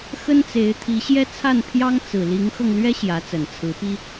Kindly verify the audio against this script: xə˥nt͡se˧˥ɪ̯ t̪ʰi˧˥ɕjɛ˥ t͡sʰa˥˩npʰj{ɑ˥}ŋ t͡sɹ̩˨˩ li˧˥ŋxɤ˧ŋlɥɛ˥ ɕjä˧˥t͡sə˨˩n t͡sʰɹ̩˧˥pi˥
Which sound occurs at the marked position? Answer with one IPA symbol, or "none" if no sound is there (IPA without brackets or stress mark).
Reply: ɑ˥